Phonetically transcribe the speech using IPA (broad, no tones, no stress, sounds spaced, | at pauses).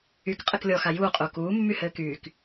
y k qʼ ɘ k lʲ ɔ x a j uː qʼ uː k uː mː y h ɘː k yː k